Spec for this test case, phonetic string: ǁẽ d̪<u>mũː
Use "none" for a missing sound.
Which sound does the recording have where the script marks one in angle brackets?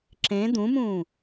ũ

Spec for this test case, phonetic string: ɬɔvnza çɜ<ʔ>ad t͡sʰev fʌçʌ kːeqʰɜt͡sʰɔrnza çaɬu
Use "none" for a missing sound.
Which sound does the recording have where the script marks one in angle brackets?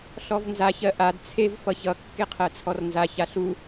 ʔ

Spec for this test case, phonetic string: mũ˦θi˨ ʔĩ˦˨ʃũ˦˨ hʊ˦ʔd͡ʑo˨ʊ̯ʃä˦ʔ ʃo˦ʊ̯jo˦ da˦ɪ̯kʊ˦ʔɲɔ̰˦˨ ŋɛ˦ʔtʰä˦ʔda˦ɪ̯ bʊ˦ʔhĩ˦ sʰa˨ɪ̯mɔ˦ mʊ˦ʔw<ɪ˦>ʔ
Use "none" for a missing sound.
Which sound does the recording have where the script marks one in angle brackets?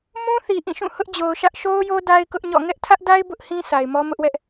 ɛ˦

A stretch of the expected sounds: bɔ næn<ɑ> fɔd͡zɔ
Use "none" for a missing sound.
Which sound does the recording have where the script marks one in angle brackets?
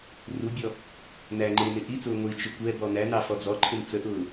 ɑ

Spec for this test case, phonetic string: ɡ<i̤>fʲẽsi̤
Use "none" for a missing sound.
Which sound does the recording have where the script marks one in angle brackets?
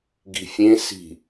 i̤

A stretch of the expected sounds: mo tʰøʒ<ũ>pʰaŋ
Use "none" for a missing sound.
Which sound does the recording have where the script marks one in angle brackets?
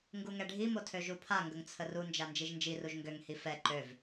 u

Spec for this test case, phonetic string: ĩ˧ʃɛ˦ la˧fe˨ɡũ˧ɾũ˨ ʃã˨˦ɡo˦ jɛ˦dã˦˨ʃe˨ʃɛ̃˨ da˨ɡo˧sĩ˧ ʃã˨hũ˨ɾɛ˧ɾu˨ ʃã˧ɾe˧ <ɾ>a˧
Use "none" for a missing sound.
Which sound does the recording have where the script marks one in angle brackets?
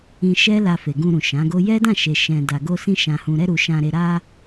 ɾ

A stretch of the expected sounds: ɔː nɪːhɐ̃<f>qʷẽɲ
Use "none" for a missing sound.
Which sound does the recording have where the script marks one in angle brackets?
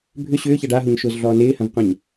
v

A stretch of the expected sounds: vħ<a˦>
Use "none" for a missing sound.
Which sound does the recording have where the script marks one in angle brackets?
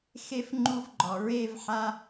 a˦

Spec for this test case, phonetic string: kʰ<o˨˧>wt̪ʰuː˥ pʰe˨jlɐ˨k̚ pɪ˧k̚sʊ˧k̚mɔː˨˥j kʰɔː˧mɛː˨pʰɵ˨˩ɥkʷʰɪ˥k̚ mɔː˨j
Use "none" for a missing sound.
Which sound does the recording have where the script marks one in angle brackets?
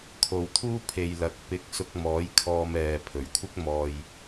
o˨˧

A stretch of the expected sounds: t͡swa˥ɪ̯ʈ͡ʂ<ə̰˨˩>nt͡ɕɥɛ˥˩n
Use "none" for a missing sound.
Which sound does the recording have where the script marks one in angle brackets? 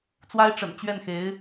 ə̰˨˩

